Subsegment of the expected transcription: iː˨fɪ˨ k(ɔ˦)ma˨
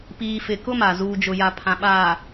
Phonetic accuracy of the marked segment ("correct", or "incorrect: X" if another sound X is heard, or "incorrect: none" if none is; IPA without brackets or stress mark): incorrect: ʊ˦